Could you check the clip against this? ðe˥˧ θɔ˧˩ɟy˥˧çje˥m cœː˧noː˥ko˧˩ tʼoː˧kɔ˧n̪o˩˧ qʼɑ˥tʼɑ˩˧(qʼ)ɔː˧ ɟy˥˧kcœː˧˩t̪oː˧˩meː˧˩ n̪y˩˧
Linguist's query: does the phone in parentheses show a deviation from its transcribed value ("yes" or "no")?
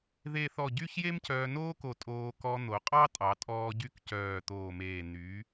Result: yes